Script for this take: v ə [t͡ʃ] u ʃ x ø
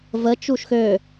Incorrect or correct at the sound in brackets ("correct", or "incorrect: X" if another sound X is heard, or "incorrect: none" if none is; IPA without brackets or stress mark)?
correct